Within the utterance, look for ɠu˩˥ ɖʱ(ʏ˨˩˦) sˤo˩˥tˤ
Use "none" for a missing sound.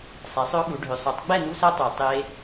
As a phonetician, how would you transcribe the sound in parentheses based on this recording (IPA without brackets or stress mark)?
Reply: ʏ˨˩˦